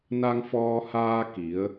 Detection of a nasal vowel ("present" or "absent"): absent